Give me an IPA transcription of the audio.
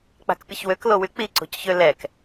k͡p a̤ k pʲ ə ç w ø k l o w y k͡p i ǀ o̤ c ç ø l ɛ k

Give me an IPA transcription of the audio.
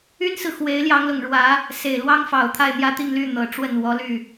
y˥ n s ɹ̩˨ x w e˧˥ ɪ̯ l j ɑ˧˥ ŋ l ʊ˨˩ ŋ ɻ w ä˧˥ | s e˨˩ ɪ̯ l w ɑ˥ ŋ f ɑ˨˩ ʊ̯ t̪ʰ a˥˧ ɪ̯ n̪ j ä˥˧ t̪ i˥˧ ŋ l y˥˩ n̪ ɤ˨˩ ʈ͡ʂ w ə˥˩ n w ɔ˧˥ l y˥˩

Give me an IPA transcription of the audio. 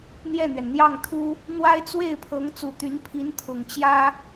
n̪ j ɛ˥˩ n̪ ɥ ɛ˩ n n̪ j ɑ˥˩ ŋ t̪ʰ u˥ | n̪ w a˥ ɪ̯ t͡s w e˥˩ ɪ̯ pʰ ɤ˧˥ ŋ t͡s u˨˩ t̪ y˧˥ n pʰ i˧˥ n t̪ʰ ʊ˨˩ ŋ t͡ɕ j ä˥

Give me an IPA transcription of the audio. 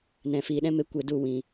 n ɛ̃˨ f iː˨ ɗ ɛ̃˦ m e˧ kʷ e˧ d u˦˨ w ĩ˨

